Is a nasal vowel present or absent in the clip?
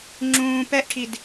present